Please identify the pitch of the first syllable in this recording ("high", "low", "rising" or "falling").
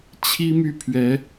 high